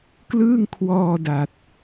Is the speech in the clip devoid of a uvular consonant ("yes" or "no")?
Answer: yes